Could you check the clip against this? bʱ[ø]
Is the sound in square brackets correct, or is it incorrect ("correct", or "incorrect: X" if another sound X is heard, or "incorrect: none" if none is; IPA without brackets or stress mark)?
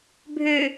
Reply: correct